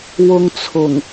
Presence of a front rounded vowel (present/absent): absent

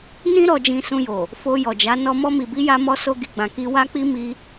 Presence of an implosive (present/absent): absent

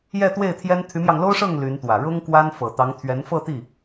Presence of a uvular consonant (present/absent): absent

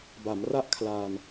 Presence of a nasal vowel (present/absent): absent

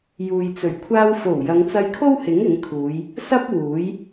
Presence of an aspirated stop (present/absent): present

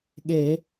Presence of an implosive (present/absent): present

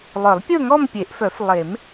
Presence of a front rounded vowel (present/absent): present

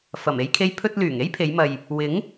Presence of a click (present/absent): absent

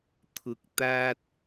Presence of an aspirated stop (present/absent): present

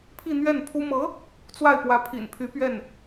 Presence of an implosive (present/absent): absent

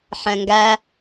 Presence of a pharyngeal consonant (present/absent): present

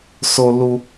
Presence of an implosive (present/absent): absent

